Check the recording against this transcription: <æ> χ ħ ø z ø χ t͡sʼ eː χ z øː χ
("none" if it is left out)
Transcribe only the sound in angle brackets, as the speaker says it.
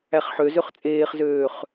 æ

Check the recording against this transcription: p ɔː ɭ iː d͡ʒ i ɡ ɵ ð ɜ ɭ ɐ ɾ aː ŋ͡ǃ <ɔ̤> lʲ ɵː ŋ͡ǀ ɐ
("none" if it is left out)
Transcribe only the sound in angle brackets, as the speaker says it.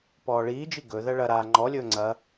ɔ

